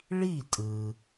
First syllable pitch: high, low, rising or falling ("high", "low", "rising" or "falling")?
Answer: falling